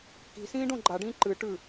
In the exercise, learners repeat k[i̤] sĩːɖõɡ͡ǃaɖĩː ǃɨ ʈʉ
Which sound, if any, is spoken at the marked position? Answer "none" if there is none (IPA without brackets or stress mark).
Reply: i̤